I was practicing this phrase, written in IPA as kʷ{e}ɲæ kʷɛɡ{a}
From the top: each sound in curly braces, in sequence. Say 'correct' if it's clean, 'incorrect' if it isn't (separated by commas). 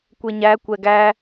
correct, incorrect